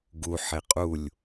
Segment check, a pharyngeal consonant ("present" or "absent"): present